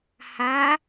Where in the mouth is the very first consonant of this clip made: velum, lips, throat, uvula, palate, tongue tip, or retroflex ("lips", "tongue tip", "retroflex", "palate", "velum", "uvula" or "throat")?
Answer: throat